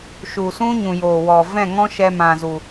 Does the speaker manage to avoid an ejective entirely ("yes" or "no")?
yes